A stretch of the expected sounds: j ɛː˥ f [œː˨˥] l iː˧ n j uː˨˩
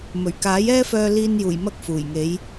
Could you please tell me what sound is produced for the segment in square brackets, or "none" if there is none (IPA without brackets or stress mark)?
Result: œː˧